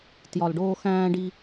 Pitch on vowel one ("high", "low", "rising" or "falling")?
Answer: low